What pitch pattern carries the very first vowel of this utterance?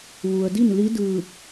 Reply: low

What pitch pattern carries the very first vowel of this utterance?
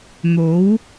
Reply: rising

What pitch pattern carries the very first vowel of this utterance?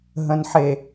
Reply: low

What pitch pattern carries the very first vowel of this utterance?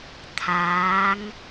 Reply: rising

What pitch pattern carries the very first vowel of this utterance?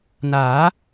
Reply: rising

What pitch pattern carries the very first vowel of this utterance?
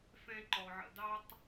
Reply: high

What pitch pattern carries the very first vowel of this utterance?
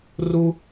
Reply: high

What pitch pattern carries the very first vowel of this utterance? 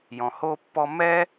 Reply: low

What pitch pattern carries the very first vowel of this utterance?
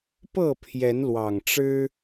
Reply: falling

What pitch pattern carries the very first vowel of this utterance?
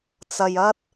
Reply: low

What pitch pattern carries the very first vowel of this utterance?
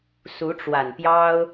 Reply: rising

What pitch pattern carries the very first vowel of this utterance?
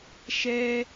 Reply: high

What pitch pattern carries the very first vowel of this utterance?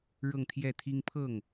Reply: falling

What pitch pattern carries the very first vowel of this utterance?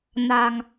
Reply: low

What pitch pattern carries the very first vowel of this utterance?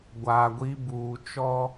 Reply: low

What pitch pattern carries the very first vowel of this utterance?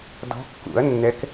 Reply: rising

